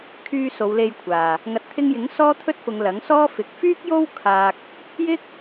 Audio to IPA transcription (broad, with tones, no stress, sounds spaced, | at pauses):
kʰ yː˧ s o˨˧ w l e˧ j kʷʰ aː˨ | ŋ ɐ˨ t̚ t̪ʰ ɪ˧ ŋ j ɪ˨˥ ŋ s ɔː˥ t̪ʰ ɵ˥ t̚ f ʊ˨˧ ŋ l ɐ˨˥ ŋ s ɔː˥ f ɪ˨˥ k̚ f yː˥ k̚ j o˥ w kʰ aː˧ k̚ | j ɪ˥ k̚